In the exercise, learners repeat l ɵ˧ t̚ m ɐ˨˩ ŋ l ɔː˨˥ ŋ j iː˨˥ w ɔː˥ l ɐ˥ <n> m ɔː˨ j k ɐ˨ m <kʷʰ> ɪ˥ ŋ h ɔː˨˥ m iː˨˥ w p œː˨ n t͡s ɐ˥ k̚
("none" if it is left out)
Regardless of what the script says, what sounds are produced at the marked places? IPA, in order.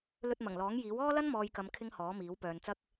n, kʰ

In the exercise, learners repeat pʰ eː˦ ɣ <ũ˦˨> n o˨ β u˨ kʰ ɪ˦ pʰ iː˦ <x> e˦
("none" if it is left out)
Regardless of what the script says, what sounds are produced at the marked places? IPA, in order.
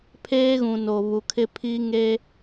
ũ˨, ŋ

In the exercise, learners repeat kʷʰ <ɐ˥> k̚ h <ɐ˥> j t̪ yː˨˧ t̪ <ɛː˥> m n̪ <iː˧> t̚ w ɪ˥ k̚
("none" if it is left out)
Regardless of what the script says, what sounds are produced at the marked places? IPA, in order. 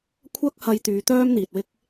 ɐ˥, ɐ˧, œː˥, iː˨

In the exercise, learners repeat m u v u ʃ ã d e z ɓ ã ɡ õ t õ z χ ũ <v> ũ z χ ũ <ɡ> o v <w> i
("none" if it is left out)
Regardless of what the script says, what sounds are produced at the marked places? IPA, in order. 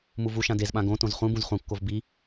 b, kː, b

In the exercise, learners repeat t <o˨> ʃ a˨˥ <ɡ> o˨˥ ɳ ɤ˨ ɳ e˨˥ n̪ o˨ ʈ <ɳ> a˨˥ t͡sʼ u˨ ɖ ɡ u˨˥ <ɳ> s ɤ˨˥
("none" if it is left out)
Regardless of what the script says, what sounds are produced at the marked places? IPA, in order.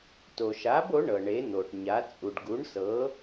o˨, b, ɲ, ɳ

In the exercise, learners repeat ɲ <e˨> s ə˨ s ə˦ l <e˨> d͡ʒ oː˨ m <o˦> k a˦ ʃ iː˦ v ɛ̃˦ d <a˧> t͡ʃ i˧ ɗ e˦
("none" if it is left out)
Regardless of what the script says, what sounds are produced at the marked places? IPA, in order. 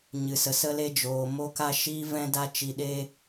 ɨ˨, e˦, o˦, a˦

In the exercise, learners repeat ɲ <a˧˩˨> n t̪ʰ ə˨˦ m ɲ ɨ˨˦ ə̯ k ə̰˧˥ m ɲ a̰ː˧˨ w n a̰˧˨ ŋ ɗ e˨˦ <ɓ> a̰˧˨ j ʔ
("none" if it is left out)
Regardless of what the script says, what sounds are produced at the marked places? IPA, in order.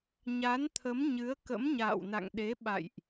a˨˦, ɓ

